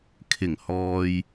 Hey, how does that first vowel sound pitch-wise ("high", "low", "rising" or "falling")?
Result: low